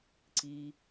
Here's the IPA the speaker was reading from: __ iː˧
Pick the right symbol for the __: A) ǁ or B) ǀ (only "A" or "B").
B